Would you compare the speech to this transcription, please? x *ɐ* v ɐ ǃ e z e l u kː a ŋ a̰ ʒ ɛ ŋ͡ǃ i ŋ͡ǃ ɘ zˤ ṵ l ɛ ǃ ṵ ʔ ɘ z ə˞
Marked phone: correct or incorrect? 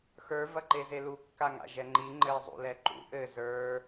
incorrect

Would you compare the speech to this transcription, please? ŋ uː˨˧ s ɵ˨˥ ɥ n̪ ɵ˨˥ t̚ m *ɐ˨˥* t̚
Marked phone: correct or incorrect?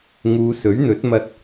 incorrect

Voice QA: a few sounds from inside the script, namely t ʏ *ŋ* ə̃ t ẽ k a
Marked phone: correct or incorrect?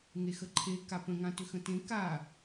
incorrect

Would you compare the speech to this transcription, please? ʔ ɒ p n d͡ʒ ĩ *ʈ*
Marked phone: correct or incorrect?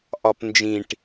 correct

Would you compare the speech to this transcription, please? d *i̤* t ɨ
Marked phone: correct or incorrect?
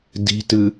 correct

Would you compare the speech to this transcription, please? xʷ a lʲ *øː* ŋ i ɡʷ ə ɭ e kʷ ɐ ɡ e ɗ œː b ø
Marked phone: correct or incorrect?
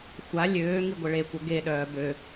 correct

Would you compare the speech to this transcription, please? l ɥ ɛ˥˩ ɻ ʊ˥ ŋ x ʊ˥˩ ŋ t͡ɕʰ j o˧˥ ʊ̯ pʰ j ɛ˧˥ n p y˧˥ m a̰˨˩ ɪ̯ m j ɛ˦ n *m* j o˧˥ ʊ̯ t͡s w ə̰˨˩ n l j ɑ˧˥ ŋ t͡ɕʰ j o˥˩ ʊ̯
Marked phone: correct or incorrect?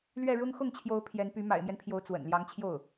incorrect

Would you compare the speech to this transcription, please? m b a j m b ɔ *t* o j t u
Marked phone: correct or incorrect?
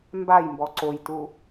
incorrect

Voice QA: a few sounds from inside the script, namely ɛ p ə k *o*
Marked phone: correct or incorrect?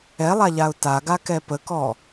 incorrect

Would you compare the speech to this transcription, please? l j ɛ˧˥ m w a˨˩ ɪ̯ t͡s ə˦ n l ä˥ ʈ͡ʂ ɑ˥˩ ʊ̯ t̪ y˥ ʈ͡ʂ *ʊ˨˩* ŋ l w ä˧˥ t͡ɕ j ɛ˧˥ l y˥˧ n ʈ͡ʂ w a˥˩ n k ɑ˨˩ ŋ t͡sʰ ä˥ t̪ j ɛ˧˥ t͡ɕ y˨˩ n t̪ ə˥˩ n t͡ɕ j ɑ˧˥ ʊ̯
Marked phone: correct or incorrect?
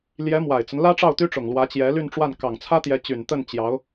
correct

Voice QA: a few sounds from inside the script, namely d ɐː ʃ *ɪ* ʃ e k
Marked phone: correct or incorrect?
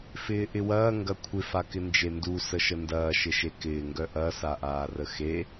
correct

